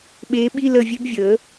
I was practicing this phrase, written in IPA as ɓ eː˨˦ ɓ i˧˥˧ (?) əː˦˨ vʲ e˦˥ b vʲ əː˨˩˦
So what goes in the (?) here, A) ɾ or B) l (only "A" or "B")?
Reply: B